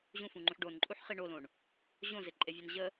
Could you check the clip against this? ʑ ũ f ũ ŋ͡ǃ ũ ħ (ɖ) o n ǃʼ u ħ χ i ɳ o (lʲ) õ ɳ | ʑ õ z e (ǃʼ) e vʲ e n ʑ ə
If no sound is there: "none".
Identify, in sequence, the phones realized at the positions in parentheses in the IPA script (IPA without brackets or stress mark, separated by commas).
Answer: ɖ, l, ǃʼ